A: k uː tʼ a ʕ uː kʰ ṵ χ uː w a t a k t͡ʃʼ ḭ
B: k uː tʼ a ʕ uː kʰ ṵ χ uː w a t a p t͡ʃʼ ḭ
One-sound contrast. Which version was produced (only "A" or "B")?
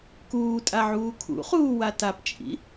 B